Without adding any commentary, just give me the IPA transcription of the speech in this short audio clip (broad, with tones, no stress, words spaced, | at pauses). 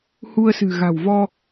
hu˧ə̯sɨ̤˨˩ ɣa̤˨˩wvɔ˧